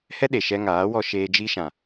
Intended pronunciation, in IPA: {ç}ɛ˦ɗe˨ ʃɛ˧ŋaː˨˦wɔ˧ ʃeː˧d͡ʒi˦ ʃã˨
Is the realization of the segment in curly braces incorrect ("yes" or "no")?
yes